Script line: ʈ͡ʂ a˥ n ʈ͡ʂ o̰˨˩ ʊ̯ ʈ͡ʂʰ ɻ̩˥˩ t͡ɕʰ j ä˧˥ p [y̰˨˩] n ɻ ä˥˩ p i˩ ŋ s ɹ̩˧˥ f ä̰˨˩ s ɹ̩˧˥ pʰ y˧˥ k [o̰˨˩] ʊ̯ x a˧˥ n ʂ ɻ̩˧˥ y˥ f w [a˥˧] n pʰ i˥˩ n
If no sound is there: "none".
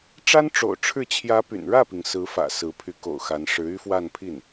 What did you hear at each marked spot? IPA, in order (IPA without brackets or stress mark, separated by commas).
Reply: y̰˨˩, o̰˨˩, a˥˧